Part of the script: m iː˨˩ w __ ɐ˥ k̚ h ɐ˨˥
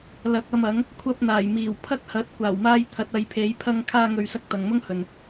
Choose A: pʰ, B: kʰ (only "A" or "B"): A